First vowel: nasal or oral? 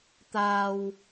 oral